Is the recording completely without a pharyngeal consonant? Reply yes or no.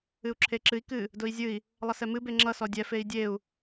yes